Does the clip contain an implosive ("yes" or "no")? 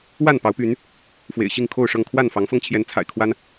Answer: no